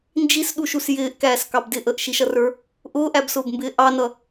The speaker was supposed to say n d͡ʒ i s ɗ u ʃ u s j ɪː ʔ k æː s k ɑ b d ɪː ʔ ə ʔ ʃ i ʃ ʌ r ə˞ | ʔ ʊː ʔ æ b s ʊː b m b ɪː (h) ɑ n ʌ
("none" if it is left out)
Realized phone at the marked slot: ʔ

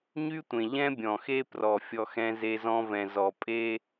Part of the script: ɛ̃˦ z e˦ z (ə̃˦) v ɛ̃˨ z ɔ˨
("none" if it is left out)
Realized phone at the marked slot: ɔ̃˦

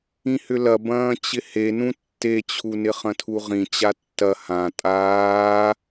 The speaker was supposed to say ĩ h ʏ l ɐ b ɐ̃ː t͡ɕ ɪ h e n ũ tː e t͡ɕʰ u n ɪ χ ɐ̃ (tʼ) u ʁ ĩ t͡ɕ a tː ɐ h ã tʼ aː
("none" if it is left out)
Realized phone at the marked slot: tʰ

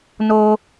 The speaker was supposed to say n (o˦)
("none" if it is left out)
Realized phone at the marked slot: oː˦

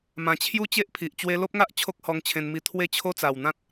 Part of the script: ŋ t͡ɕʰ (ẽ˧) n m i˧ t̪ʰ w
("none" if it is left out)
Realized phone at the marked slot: ẽ˧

